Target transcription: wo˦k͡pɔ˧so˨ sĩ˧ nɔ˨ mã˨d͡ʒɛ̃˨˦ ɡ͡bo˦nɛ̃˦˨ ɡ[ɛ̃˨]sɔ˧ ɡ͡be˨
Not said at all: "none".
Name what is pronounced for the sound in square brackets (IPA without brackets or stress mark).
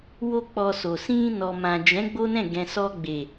ɛ̃˨